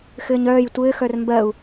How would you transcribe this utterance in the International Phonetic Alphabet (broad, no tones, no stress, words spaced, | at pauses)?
xɘːɲœːj tʷɘːxœr mbɜu̯